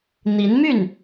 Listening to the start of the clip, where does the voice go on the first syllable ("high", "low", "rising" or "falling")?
rising